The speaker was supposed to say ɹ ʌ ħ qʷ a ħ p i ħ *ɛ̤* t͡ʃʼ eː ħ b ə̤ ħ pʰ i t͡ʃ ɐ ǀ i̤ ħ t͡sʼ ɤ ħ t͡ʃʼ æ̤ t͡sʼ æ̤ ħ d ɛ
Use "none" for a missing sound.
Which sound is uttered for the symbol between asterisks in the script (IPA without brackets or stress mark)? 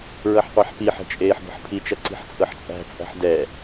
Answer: ɛ̤